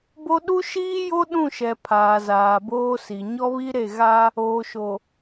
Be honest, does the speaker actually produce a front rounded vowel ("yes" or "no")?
no